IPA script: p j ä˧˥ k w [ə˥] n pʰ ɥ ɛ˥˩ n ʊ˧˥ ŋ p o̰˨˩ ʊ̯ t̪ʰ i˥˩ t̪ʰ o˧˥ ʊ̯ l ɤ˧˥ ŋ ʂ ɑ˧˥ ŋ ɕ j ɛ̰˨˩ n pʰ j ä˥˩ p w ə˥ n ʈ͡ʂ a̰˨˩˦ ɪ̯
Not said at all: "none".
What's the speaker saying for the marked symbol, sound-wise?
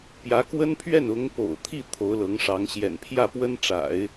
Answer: ə˥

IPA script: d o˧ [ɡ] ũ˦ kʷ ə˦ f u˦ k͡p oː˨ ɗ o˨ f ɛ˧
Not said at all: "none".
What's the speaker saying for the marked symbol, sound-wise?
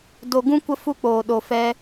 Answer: ɡ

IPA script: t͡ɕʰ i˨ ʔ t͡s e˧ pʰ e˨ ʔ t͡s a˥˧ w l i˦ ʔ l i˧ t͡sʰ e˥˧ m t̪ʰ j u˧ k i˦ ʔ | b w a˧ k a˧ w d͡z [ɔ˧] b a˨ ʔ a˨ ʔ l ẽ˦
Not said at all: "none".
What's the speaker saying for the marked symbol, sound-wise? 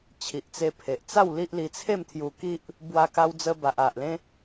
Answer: ə˧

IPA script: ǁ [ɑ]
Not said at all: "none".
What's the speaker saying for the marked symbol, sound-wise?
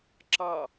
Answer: ɑ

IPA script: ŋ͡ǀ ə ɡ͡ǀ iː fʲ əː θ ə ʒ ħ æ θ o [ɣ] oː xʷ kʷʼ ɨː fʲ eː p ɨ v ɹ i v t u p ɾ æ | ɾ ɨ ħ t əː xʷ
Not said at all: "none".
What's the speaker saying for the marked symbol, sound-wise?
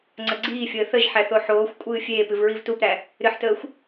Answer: ħ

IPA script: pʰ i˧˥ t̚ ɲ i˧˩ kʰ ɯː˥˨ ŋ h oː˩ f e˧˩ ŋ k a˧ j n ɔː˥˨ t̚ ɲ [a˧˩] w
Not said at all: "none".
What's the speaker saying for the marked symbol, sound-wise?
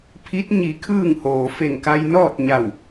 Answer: a˧˩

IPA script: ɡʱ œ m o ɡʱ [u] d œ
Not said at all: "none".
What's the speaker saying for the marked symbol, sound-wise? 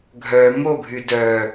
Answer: y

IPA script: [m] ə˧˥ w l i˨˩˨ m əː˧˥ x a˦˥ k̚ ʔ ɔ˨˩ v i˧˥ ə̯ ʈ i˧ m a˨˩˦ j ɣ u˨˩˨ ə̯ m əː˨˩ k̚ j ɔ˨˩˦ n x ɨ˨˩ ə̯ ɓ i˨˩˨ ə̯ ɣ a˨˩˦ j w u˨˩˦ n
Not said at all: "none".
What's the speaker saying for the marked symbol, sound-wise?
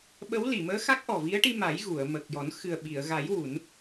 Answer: ɓ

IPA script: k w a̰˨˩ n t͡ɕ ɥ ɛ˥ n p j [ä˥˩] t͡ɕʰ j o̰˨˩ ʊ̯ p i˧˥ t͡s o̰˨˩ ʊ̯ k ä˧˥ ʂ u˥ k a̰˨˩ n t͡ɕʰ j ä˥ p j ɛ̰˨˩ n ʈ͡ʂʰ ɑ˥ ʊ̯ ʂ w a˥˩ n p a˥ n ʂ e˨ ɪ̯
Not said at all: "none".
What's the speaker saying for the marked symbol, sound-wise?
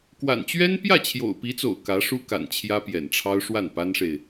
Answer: ä˥˩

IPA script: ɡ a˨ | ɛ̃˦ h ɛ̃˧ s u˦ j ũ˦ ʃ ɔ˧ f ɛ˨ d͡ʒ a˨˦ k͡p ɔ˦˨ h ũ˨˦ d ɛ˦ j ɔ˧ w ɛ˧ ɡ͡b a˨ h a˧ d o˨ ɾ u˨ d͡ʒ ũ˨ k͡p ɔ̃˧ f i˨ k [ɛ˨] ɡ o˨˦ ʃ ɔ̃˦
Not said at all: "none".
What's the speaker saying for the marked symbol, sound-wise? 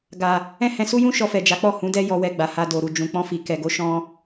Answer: ɛ˨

